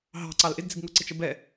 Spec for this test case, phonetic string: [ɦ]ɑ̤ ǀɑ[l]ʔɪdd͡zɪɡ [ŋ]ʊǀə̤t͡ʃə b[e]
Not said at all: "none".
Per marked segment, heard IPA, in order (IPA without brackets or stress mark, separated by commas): ɦ, l, ŋ, ɛ